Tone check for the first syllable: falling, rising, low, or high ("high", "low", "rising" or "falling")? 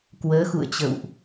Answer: rising